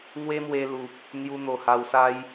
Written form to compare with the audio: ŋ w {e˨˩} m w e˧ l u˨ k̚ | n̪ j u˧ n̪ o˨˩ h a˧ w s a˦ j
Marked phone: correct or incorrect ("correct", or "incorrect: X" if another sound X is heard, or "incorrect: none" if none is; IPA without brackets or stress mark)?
incorrect: e˦